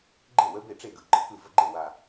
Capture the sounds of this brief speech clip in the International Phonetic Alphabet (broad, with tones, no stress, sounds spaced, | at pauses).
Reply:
ɡ͡ǃ e˥˩ w ə˧˥ b e˥˩ ʈ͡ʂ e˥˩ ɡ ɯ˨˩ ɡ͡ǃ ə˧˥ k ɯ˥˩ v ə˥˩ ɡ͡ǃ e˥˩ w a˨˩